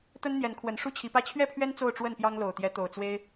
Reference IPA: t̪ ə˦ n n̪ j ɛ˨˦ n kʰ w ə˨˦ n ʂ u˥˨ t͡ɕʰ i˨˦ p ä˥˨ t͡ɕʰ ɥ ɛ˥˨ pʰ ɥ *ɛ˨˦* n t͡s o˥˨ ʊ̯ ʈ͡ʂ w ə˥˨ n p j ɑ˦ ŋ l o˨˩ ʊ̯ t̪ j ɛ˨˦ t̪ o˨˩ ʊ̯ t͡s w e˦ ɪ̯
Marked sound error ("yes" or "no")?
yes